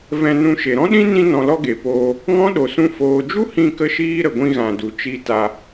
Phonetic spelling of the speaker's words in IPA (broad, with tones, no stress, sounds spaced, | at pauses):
v ɛ̃˧ n ũ˧ ʃ e˨ ɾ ɔ̃˦ ɗ ĩ˦ n ĩ˧ n ɔ̃˨ l ɔ˧ ɡ e˨ p oː˧ | ŋ ɔ̃˦ ɗ o˨ s ũ˧ f oː˨ d͡ʒ u˦ h ĩ˧ k ə˧ ʃ iː˧ ɾ ə˨ ɡʷ ĩ˧ ɣ ã˨ d u˨ t͡ʃ i˧ t a˧